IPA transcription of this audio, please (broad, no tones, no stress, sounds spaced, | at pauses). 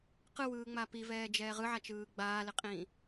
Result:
q ɯ w ɯː ŋ͡m a p i v ɛː d͡ʒ ɛː ʁ ɯ ʕ a t͡ʃ ɯː ɡ͡b aː l ɪ qʼ ĩː